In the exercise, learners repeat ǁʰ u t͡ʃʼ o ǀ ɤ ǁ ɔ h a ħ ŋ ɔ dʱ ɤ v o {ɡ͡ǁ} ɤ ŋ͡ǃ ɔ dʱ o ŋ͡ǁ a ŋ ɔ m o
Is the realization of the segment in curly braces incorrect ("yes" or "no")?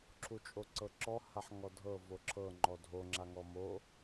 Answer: yes